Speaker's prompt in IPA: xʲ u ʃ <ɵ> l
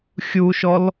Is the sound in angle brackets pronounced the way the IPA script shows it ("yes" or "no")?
no